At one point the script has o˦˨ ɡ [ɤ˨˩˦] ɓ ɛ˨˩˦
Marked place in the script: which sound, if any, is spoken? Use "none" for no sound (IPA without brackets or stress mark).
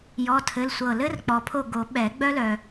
o˨˩˦